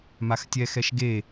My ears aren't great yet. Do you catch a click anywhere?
no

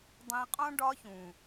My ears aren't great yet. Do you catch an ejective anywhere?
yes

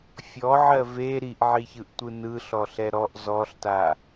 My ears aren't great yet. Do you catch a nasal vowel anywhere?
no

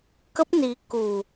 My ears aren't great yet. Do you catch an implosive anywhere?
no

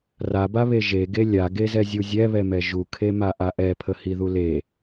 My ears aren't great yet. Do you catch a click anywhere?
no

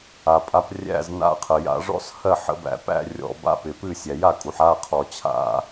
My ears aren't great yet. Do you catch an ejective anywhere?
yes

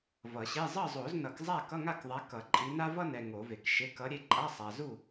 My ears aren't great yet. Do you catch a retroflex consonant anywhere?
no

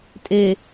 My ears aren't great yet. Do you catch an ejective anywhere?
yes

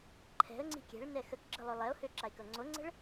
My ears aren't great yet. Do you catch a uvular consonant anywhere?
no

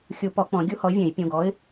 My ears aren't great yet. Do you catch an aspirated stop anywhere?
no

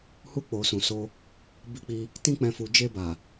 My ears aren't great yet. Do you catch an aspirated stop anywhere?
no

